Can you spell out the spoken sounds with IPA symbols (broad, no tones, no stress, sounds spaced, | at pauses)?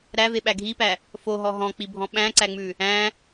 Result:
ɾ æ v e ɓ æ ɡʱ i p æ | f o ɦ ɔ ɦ ɔ̃ k͡p i bʱ ɔ̃ ɓ æ̃ ǀ æ ŋ͡m ʉ | æ̃